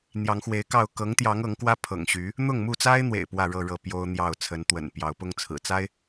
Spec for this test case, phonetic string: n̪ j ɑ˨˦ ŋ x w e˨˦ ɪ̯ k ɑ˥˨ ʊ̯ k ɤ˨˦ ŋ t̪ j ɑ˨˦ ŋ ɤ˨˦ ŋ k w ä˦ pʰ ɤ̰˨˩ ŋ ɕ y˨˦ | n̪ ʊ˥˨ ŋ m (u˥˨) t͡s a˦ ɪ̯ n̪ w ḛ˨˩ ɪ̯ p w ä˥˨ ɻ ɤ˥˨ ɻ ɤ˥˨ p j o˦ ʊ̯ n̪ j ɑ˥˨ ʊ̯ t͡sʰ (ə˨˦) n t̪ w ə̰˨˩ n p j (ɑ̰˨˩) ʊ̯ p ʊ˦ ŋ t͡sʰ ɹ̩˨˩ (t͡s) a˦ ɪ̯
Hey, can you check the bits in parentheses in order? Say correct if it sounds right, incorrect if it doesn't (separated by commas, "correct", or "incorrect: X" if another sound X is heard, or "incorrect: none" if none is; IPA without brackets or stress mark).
correct, correct, incorrect: ɑ˨˦, correct